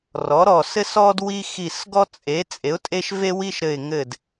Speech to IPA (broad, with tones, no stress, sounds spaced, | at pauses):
r ɔ˩˥ ɾ ɔ˧˩ s ɘ˦ s ɔ˦ d w i˦ x i˧˩ s ɡ ɔ˦ t͡sʼ e˩˥ t͡sʼ e˩˥ ʊ̯ tʼ e˦ ʃ v e˦ w i˦ ʃ ɾ ɘ˧˩ ɪ̯ ŋ ɘ˧˩ d